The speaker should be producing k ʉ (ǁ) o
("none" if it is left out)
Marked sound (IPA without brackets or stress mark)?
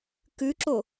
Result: ǁ